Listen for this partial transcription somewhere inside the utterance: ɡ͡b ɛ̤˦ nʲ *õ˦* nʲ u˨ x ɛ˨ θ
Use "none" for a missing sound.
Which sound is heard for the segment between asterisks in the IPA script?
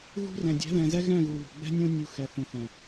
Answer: õ˦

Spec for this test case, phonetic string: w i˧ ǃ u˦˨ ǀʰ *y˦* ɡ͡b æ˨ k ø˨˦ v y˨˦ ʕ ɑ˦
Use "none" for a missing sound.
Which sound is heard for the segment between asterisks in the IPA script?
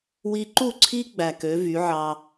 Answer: i˦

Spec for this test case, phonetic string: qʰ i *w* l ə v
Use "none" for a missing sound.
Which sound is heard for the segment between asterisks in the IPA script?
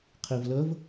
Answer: v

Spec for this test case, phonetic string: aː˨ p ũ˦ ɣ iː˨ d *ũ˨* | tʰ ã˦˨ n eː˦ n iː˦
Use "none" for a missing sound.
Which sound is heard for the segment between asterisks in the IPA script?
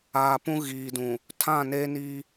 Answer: ũ˨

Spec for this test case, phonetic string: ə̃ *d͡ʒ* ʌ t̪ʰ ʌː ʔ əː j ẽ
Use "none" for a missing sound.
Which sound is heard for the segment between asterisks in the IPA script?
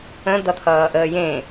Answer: d̪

